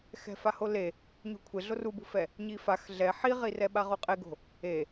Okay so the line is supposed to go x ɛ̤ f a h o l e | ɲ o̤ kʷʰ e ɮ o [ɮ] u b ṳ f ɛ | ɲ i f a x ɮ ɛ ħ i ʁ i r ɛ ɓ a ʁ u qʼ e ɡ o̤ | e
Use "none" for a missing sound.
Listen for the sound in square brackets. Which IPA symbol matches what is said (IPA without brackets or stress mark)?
r